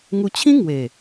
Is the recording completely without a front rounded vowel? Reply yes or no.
yes